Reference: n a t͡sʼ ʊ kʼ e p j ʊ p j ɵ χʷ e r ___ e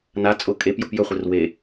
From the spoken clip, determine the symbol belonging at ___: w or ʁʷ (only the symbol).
w